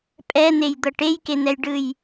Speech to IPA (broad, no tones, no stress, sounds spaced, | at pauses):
pʼ ɛ n̪ e j d̪ ɤ ʈ e j k e n̪ ɛ j ɖ ɯ j